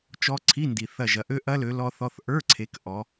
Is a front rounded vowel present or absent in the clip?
present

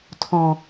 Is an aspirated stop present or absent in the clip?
present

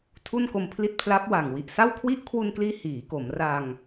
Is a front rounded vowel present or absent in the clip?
absent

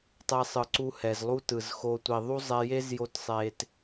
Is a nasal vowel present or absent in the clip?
absent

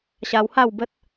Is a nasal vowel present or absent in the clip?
absent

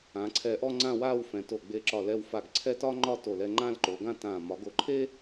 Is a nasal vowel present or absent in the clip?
present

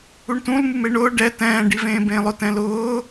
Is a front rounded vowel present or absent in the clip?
absent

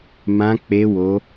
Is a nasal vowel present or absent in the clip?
present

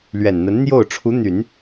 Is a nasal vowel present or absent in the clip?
absent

